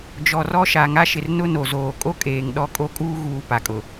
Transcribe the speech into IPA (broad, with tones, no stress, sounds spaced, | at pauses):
d͡ʒ ɔ˨ r ɔ˦ ʃ a˨ ŋ a˦ ʃ ɪ˨ r n ʊ˦ n o˨ z oː˨ kʼ o˦ kʼ eː˨ ŋ ɗ ɔ˦ kʼ o˦ kʼ uː˦ ɣ uː˨ p a˨ kʼ ʊ˨